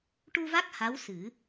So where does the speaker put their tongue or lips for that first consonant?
retroflex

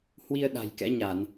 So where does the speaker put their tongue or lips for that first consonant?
throat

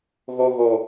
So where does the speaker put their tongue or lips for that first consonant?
velum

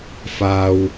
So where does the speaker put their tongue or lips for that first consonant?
lips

